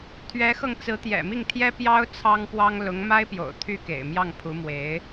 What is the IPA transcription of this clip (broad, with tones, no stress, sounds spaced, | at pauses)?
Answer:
t̪ʰ ɥ ɛ˧˥ x ɤ˧ ŋ t͡s ɹ̩˧˥ t̪ j ɛ̰˨˩ m i˥˩ ŋ t̪ʰ j ɛ˥ p j ɑ˥ ʊ̯ t͡sʰ ɑ˥ ŋ p w ɑ˥ ŋ l ʊ˧˥ ŋ m a˥ ɪ̯ p j o̰˨˩ ʊ̯ t̪ʰ y˥˩ k ḛ˨˩ ɪ̯ m j ɑ˥˩ ŋ pʰ u˧˥ m w e˧˥ ɪ̯